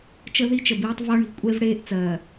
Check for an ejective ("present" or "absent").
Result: present